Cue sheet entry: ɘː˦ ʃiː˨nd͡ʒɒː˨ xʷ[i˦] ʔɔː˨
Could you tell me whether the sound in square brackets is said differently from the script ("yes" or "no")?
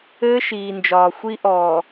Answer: no